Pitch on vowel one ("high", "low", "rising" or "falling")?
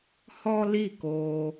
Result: high